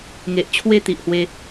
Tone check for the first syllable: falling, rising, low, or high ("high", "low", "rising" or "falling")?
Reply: low